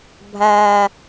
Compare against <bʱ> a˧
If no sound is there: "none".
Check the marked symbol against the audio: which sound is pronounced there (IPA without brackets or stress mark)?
bʱ